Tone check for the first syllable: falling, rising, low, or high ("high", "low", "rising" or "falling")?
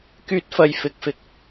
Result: high